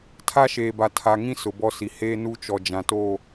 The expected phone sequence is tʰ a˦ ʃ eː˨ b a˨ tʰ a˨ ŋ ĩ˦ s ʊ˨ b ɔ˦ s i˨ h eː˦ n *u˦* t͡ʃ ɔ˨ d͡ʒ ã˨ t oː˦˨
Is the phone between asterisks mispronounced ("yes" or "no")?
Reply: no